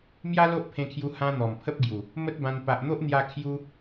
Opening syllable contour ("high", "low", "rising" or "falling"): high